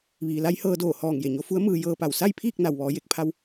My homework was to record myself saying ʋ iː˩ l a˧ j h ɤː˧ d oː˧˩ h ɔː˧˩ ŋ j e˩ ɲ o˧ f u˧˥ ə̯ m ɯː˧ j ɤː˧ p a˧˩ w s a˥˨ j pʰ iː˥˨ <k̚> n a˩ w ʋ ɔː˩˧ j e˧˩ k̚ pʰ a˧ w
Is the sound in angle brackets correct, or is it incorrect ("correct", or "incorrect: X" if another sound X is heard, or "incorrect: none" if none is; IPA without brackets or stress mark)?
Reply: correct